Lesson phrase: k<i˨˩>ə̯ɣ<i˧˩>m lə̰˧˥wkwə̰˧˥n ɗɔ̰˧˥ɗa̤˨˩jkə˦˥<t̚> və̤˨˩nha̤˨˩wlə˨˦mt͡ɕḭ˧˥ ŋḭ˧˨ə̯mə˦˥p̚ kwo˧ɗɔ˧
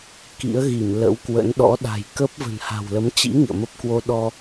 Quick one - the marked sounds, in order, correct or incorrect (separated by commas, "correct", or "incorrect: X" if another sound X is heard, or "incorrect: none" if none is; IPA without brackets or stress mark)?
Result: incorrect: ḭ˧˥, correct, incorrect: p̚